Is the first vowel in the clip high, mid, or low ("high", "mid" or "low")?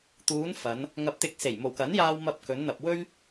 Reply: high